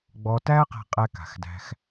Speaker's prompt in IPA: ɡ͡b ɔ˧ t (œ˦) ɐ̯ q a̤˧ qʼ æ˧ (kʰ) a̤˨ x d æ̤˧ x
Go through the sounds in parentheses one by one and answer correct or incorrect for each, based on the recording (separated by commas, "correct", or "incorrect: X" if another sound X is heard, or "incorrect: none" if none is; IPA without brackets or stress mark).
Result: incorrect: æ˦, incorrect: k